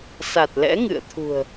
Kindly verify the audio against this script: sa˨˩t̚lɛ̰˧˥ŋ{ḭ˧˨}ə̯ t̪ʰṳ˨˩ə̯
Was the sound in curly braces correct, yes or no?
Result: no